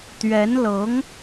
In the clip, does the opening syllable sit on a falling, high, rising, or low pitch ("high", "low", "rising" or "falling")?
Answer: rising